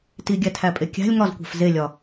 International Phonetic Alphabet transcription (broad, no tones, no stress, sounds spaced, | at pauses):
t i ɡʲ æ tʰ æ pʼ e kʲ æ̤ lʲ ŋ ɒ z kʷ æ̤ f z e lʲ ɒ